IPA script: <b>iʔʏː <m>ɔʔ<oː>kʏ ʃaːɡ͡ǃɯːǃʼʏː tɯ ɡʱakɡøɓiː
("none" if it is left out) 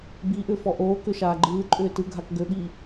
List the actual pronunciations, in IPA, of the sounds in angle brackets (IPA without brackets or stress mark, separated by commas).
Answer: b, f, oː